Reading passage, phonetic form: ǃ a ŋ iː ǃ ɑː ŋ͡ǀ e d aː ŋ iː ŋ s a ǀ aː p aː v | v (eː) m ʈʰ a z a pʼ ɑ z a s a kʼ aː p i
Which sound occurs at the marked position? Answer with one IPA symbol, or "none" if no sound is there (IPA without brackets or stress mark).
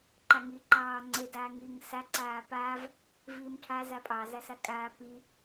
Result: iː